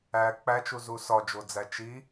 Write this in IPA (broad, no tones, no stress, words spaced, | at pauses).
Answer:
æ k͡pæt͡ʃuzu sɒd͡ʒod͡zæ t͡ʃi